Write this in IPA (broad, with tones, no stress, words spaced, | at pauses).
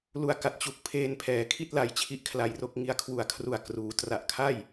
lu˧a̯ka˨˩t̚ t͡ɕu˨˩k̚ pʰeː˧npʰɛː˩˦kʰi˥˩t̚ la˧jt͡ɕʰi˥˩ʔkʰla˧jro˥˩k̚ ŋi˧a̯kʰwu˨˩a̯kʰru˨˩a̯ kruː˩˦ tra˨˩ʔkʰa˥˩j